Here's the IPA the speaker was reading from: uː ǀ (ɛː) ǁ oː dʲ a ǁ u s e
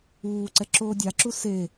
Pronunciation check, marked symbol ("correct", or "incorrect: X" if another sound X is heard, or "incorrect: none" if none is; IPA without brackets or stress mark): incorrect: ɛ